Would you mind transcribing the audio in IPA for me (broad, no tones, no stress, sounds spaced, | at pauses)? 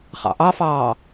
χ ɑ̰ ʔ ɑ f ɑː